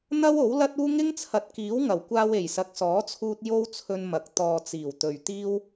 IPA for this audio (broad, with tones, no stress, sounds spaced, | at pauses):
n̪ ɐ˥ w o˨˥ w l ɐ˥ t̚ uː˥ ŋ ɪ˥ ŋ t͡sʰ ɐ˨ t̚ k iː˨˥ w ŋ ɐ˨˩ w kʷ aː˧ w e˨˩ j s ɐ˨˥ k̚ s ɔː˨˥ t͡sʰ uː˧ t̚ j o˥ w t͡sʰ ɵ˧ n m ɐ˨ k̚ t̪ ɔː˨ t͡s iː˨˩ w t̪ ɵ˨ ɥ t̪ iː˥ w